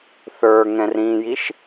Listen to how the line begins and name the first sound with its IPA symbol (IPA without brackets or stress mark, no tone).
θ